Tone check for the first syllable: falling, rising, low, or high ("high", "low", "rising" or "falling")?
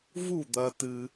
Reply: falling